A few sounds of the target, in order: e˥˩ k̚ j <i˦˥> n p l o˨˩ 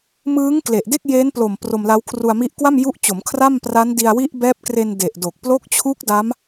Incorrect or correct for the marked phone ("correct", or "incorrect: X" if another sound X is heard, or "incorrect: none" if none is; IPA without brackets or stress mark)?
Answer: incorrect: e˦˥